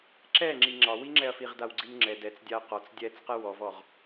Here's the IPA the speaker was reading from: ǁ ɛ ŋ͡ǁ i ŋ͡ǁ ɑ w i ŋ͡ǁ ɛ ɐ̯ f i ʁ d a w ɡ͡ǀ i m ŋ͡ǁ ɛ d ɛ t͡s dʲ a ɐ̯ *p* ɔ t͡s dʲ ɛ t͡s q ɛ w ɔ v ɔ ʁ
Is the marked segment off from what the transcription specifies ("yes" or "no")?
yes